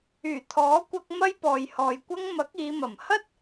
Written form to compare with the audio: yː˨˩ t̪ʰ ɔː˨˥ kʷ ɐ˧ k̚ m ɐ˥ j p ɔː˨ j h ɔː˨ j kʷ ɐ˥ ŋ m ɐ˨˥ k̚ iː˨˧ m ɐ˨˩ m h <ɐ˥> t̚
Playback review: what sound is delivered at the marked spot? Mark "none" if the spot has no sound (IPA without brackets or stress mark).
ɐ˥